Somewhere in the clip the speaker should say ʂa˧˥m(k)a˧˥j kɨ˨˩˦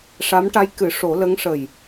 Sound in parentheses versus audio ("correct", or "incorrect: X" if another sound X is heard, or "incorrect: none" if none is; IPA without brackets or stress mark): incorrect: ʈ